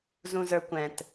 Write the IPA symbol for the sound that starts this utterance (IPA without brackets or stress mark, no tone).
z